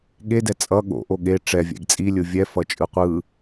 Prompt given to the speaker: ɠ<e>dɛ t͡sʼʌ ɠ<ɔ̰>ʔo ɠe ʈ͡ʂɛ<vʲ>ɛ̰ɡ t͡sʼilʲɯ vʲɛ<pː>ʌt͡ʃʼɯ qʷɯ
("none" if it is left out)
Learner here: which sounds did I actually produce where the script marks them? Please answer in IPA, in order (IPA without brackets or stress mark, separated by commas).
e, o̰, vʲ, f